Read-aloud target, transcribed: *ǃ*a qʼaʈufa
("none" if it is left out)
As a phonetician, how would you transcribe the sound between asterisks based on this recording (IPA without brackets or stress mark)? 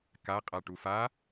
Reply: k